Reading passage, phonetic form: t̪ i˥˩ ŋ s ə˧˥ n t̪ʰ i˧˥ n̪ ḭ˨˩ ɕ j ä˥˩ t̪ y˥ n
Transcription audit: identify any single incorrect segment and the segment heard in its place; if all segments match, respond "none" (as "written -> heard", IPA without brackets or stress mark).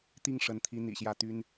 s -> ʂ